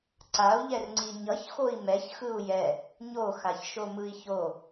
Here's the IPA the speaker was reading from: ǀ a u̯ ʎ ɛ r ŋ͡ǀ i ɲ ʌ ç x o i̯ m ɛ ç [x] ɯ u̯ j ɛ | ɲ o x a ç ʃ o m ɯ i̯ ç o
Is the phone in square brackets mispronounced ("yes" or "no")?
no